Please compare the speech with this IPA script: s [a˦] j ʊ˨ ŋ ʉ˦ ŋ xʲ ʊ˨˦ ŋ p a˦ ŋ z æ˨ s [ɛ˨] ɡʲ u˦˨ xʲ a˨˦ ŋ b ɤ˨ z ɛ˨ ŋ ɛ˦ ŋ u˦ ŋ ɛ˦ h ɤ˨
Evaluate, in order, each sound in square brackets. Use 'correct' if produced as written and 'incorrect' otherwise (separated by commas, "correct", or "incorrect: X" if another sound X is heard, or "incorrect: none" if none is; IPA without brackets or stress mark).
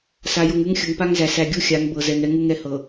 incorrect: a˨, incorrect: æ˨